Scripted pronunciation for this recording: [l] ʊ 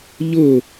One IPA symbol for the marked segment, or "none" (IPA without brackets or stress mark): ʎ